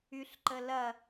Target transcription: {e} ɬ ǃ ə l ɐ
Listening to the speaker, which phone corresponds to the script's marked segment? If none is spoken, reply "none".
y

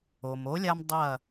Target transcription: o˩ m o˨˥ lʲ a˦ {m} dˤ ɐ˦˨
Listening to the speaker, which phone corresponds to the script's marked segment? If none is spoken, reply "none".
m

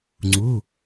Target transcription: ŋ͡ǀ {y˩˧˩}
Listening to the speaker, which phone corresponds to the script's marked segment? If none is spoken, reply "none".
u˩˧˩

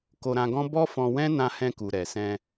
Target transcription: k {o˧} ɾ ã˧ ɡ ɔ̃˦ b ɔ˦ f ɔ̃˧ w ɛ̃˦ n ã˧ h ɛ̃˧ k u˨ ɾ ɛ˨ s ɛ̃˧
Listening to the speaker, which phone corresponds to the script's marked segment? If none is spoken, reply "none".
o˧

